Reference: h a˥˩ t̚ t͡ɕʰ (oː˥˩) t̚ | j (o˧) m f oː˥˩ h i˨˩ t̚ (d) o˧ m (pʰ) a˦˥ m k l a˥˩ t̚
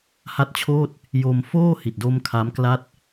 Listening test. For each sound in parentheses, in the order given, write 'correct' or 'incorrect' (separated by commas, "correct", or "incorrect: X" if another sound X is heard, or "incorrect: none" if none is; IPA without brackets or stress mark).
correct, correct, correct, incorrect: kʰ